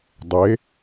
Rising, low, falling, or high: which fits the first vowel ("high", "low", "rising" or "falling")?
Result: rising